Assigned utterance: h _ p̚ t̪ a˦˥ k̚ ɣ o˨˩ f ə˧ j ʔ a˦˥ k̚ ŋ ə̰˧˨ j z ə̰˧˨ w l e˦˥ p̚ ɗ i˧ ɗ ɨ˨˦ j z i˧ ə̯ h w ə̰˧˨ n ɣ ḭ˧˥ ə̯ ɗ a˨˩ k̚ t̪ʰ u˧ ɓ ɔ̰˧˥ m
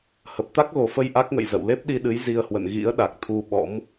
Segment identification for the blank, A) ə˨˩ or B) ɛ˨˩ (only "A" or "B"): A